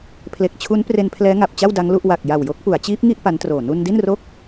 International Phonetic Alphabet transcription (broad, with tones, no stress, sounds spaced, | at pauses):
pʰ l e˨˩ k̚ t͡ɕʰ u˦˥ n p r e˧ n pʰ l ɛː˦˥ ŋ a˨˩ p̚ t͡ɕ a˥˩ w d a˦˥ ŋ l u˥˩ ʔ w a˨˩ k̚ j a˨˩ w j o˦˥ k̚ p u˩˦ a̯ t͡ɕ iː˦˥ p̚ ŋ i˥˩ ʔ p a˦˥ n t r oː˨˩ n u˧ n d i˥˩ n r o˥˩ k̚